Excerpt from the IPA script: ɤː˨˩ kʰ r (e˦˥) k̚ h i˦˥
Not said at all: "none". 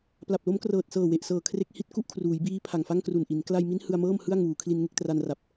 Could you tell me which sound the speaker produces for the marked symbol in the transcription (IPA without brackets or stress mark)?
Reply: e˦˥